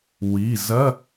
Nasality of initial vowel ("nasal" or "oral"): oral